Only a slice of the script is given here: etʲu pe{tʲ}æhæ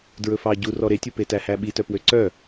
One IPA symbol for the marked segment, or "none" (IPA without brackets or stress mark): t